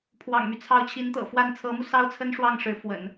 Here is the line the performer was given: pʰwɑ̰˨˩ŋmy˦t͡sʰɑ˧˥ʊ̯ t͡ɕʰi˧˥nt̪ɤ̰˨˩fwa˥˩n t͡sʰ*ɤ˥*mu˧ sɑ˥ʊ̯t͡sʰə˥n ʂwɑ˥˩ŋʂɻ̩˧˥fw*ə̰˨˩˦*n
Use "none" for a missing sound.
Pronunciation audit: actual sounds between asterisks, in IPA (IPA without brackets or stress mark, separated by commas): ɤ˧˥, ə̰˨˩˦